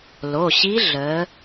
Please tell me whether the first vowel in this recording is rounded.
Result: yes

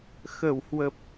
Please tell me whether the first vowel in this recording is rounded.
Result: no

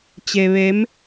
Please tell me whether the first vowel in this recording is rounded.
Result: no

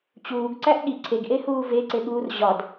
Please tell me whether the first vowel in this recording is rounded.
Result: yes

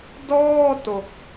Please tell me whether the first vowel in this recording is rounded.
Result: yes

